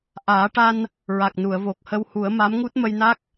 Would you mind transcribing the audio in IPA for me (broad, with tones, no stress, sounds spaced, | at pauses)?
ʔ aː˨˩˦ ʈ a˧ n | ɹ a˨˩ k̚ n u˨˩˨ ə̯ v o˨˩ k̚ h ə˧ w h u˨˩˦ ə̯ m a˧˥ m ŋ u˦˥ t̚ m ə˧ j n a˦˥ k̚